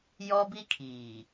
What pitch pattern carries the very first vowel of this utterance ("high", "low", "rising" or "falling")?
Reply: high